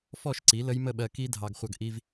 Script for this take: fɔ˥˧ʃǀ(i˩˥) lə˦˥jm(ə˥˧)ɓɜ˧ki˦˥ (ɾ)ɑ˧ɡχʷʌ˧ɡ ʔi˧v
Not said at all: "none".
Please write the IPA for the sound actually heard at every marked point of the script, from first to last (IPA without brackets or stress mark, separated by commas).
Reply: i˩˥, ə˥˧, dʱ